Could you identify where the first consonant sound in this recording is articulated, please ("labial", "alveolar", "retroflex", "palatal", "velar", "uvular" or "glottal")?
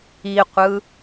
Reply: uvular